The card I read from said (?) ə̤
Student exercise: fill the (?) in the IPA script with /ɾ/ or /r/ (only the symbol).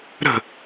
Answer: ɾ